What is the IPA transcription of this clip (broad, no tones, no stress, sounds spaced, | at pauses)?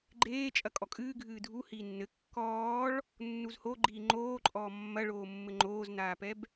ɡ͡ǃ eː t͡ʃʼ ɐ kʼ ɔ kʼ ɨː ɡʱ ɨː dʱ u h iː nː ɘ kː ɔː ɭ | nː u z h o ɡ͡ǃ iː ŋ͡ǃ oː ǃʼ ɔː mː ɐ ɭ oː mː ɘ ŋ͡ǃ oː z n aː p ɛ b